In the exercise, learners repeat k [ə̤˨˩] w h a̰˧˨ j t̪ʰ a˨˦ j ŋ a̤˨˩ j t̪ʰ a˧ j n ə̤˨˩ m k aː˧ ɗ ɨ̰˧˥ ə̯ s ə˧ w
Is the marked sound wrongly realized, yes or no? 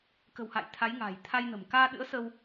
no